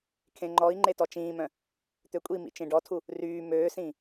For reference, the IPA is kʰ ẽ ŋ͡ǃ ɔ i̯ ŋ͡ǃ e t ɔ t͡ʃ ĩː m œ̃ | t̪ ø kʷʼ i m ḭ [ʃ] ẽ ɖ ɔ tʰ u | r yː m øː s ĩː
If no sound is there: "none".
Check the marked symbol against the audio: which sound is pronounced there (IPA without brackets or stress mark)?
t͡ʃ